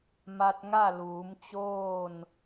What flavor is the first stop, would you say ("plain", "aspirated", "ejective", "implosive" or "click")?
plain